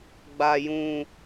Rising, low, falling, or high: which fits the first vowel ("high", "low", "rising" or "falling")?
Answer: low